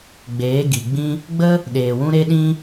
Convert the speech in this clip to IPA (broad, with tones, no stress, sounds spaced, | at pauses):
ɡ͡b eː˨˦ ɡ i˨ ɡ͡b ĩ˦ | ɡ͡b ə˦ | ɗ eː˨ w ũ˦ ɾ e˦ ɗ ĩ˦